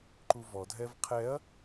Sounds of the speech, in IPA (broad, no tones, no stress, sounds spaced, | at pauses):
ǃ u v ɔ dʱ ɛ v qʰ ɛ ɐ̯